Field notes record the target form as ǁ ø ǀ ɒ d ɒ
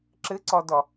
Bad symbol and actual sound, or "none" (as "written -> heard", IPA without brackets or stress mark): ø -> ɘ